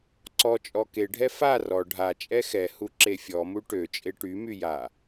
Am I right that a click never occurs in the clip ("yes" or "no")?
no